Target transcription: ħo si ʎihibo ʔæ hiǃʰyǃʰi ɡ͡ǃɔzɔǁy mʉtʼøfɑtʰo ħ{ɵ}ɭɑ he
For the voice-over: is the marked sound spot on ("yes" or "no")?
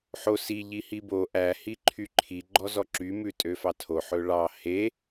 yes